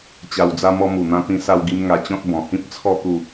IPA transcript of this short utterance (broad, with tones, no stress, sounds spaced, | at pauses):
t͡ɕ a˨˩ w d͡z a˧ m ɔ˧ m u˨˩ n̪ ã˧ t̪ ĩ˧ s a˧ w ɡ i˧ m ŋ a˧ t͡ɕ ɔ̃˦ t̚ b ɔ̃˨˩ h ĩ˦ p̚ t͡sʰ ɔ˥˧ t̪ u˥˧